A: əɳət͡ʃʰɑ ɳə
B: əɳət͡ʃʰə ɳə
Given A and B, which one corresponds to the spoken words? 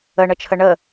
B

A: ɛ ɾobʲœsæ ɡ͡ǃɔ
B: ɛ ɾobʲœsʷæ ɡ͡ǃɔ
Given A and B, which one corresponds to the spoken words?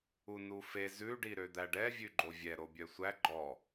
B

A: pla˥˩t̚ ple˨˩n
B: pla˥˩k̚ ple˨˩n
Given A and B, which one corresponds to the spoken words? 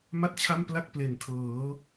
B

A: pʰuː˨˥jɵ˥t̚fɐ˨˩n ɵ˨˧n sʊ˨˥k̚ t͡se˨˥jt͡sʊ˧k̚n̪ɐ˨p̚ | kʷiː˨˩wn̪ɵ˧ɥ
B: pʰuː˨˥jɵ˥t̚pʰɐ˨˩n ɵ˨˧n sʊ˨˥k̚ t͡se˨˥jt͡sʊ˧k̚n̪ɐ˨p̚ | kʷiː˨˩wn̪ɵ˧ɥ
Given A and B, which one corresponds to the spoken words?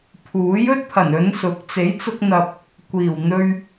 B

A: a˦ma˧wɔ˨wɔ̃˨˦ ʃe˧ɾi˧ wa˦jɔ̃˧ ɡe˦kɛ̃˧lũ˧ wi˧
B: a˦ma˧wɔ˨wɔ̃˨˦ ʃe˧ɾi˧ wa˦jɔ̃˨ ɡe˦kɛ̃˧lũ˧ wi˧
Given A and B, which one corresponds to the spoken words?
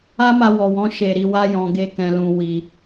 A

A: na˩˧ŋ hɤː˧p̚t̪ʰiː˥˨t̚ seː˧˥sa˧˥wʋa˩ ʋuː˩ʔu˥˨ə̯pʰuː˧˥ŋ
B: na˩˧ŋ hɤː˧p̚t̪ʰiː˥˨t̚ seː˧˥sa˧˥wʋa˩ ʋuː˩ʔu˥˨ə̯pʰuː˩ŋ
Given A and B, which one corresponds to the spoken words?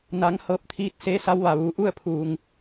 B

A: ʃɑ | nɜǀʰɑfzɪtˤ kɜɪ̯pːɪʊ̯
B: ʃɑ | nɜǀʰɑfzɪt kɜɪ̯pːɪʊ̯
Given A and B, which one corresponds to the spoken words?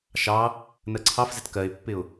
B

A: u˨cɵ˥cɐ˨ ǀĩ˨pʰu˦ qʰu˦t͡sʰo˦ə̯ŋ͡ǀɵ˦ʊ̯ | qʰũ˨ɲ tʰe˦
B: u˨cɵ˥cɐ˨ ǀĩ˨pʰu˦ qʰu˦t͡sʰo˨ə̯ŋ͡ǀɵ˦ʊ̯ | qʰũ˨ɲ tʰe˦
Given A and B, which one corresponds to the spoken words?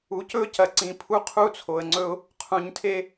B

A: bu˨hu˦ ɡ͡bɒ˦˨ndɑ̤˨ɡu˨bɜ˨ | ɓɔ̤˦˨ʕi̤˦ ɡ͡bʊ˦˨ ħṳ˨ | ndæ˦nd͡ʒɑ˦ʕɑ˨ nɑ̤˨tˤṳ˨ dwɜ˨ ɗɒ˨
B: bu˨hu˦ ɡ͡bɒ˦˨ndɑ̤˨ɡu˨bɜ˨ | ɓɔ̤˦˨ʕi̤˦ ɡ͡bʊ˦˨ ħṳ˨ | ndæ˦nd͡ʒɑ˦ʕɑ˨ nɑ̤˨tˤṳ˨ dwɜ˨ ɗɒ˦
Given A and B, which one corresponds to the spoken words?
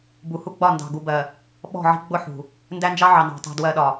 A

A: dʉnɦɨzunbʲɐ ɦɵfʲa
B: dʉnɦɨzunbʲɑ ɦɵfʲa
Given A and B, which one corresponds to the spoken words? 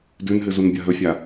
A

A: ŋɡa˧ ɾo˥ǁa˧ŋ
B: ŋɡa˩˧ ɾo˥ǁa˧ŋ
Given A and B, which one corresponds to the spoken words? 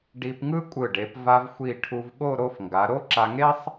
B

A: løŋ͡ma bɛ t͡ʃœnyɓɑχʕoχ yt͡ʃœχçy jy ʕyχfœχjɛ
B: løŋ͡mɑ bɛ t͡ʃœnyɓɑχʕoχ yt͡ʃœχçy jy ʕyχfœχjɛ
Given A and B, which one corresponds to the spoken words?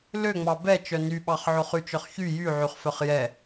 B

